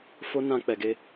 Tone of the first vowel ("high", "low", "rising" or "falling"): high